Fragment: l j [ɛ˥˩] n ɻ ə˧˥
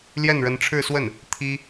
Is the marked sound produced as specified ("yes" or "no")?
yes